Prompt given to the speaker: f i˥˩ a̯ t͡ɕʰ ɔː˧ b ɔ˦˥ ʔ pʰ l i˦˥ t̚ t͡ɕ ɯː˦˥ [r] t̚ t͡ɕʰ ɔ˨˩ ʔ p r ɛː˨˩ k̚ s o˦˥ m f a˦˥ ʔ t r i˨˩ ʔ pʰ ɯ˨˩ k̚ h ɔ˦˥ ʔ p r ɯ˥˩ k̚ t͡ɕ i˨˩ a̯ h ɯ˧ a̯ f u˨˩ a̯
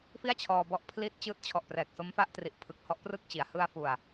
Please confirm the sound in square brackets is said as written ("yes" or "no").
no